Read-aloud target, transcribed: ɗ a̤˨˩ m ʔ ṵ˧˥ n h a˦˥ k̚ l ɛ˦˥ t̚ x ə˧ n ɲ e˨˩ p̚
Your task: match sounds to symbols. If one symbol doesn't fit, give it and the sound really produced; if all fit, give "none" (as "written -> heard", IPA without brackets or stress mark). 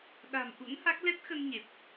none